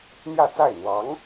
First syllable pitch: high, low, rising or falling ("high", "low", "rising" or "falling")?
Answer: falling